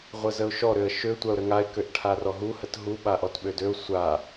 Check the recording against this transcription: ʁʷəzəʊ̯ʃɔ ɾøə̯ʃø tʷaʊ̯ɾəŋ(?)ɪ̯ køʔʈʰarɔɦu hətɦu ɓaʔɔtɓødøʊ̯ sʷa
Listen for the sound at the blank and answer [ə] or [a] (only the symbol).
a